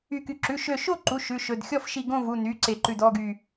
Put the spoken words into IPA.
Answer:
y˧˩ky˧˩ ǁʉ˩˧˩ʃø˧˩ʃo˥˨ǃu˩˧˩ ʃʉ˩˧˩ʃɵ˩˧˩d xʲɔ˥˨fʃi˧˩ ɡõ˥˨vu˩˧˩ny˩˧˩ ǀe˧˩ǃʉ˧˩d ɔ˥˨ɡy˧˩

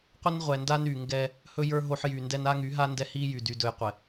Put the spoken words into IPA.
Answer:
qʷə˦nʁʷɛ˨nda˦n y˨ŋɡɛ˦ | hɵ˦jə˞˦ ɦo˦ħ jy˨ndɛ˦n a˦ŋy˨˦ɦa˦ ndɛ˦hi˦jy˨ dy˨dɵ˨j qʷɛ˨

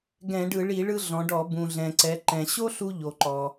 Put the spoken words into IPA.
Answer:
ɡɛ̃˧˩˧ɖɯ˧˩˧ɭi˧˩˧ ɭɯ˧ɮɔ̃˩˧ɖɔ˧˩˧ bũ˩ɮɛ̃˩ǀɛ˩˧ ǃɛ̃˩ɕo˥ɬu˧ ʎo˩ǃɔ˩

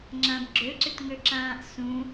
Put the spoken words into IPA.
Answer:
ŋ͡ǁãbɡ͡ǁøǀʏtŋø ǁãːʔsũ

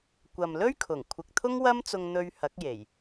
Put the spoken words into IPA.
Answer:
kʷɐ˨mlɵ˥ɥkʰʊ˨˩ŋ kʷʰɪ˨k̚t̪ʰʊ˥ŋwɐ˥mt͡sʊ˧ŋ n̪ɵ˧ɥ hɐ˨˥k̚je˨˩j

